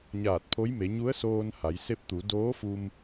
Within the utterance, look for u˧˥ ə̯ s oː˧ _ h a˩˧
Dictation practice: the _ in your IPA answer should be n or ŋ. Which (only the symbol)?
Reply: n